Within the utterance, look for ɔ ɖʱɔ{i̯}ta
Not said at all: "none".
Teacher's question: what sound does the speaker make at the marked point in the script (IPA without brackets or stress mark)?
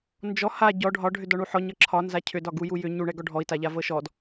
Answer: i̯